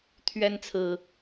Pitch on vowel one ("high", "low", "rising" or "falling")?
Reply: high